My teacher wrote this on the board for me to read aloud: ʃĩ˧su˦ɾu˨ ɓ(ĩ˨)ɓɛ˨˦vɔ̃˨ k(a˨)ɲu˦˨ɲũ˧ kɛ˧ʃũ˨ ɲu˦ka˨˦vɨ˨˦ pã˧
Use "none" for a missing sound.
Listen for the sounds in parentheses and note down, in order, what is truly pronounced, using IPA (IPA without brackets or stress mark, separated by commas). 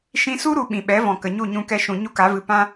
ĩ˨, ə˨